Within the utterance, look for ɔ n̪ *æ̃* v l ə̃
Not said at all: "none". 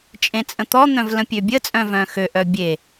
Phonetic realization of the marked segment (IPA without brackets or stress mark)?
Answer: œ̃